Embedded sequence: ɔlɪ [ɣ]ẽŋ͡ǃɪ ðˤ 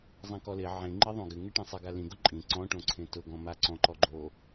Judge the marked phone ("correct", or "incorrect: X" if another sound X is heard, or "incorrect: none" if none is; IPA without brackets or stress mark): incorrect: ʕ